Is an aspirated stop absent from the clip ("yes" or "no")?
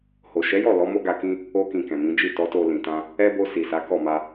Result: yes